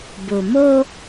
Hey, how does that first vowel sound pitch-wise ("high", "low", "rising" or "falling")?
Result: low